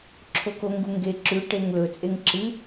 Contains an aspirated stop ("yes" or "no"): yes